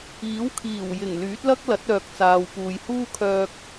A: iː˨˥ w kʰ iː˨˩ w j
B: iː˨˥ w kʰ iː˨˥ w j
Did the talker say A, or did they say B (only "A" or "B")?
A